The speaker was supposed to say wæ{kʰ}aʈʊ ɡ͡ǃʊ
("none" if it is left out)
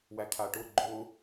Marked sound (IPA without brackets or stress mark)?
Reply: kʰ